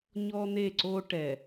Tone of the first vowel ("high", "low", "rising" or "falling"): high